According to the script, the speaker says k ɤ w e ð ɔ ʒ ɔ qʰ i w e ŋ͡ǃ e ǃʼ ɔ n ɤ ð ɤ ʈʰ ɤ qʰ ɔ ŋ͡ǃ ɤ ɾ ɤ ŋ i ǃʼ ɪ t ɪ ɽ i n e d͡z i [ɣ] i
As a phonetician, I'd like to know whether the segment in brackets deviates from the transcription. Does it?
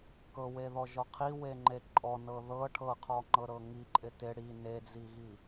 no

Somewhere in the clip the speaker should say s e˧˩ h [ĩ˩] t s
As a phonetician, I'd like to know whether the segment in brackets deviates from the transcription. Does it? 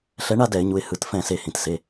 no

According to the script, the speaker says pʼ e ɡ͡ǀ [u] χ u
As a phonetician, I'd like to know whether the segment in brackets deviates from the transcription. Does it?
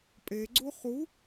no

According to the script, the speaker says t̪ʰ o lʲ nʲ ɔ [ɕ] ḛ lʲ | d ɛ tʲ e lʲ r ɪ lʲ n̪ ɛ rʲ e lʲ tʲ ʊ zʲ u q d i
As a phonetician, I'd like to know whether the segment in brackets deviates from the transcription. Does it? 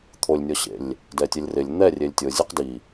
no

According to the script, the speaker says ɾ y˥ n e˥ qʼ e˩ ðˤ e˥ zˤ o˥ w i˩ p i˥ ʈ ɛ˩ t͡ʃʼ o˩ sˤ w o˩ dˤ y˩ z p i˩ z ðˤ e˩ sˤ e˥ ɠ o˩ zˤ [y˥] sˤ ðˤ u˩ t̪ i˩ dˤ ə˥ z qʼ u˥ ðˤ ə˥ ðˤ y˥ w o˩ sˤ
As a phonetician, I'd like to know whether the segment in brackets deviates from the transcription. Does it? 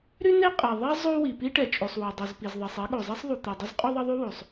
yes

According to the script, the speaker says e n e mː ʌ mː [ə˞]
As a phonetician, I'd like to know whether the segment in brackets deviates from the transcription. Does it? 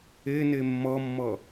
yes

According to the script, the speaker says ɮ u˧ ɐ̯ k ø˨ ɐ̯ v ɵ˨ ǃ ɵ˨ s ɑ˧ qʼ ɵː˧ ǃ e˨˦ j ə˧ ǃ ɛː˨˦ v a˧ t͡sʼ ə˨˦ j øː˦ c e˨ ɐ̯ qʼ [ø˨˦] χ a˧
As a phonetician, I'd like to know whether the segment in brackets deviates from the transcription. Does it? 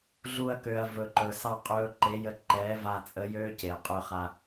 yes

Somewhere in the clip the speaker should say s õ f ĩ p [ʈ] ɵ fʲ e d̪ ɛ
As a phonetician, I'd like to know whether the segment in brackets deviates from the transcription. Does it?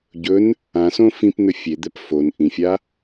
yes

